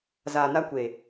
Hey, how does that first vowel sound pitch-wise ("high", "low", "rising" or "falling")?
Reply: low